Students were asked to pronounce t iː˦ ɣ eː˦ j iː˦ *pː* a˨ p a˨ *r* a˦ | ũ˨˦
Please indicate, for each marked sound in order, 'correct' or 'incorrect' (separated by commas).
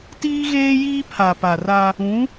incorrect, correct